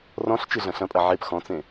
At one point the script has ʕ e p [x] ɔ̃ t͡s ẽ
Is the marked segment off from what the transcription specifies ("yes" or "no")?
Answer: no